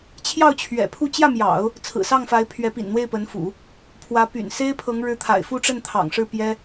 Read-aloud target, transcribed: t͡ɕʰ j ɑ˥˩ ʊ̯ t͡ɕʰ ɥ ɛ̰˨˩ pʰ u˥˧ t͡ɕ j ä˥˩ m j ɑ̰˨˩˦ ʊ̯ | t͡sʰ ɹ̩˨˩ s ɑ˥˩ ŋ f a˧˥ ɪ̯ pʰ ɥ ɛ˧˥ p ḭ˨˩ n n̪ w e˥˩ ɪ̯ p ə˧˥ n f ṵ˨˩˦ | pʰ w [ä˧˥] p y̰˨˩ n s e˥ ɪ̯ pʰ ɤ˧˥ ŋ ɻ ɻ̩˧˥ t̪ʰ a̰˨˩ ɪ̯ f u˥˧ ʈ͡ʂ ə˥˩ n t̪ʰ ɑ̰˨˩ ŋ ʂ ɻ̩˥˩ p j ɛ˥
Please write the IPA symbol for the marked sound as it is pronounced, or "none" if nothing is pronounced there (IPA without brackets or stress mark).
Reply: ä˧˥